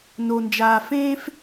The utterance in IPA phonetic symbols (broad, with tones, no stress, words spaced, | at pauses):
no˩nd͡ʒaː˩ fẽː˥f